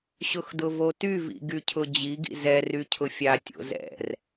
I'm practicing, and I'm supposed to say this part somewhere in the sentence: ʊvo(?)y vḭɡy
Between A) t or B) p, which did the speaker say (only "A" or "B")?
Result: A